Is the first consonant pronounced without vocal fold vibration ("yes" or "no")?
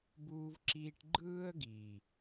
no